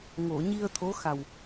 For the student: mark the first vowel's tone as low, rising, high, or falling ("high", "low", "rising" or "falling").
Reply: low